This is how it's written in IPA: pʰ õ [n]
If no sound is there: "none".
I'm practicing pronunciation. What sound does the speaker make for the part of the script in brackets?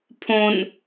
n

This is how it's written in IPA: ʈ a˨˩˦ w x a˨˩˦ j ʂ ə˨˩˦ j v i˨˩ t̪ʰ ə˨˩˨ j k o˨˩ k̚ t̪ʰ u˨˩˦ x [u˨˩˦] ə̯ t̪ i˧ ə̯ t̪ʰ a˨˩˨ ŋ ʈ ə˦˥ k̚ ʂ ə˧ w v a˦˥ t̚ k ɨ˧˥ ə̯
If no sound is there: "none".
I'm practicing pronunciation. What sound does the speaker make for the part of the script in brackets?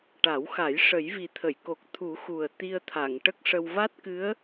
u˨˩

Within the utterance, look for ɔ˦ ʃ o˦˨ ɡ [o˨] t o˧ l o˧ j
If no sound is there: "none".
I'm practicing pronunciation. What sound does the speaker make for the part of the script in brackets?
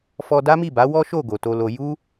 o˨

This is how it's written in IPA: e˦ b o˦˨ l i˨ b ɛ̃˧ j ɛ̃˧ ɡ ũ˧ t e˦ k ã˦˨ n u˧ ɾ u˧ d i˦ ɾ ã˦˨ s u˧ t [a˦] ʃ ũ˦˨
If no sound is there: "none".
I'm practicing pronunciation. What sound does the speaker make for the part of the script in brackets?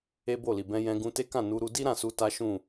a˦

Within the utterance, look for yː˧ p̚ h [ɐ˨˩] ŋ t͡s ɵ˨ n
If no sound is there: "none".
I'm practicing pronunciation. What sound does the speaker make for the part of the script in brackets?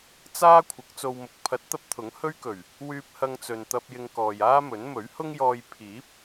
ɐ˧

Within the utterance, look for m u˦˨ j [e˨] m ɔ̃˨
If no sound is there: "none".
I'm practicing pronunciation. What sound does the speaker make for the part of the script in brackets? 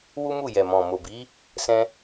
ɛ˨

